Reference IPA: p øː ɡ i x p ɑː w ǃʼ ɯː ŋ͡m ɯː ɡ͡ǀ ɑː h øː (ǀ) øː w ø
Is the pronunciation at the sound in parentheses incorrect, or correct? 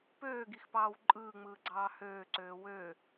correct